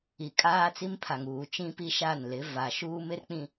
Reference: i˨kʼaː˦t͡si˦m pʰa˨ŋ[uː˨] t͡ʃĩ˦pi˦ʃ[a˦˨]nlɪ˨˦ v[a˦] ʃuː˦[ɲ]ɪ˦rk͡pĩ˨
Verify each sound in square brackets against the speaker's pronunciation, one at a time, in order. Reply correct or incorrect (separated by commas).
correct, correct, incorrect, incorrect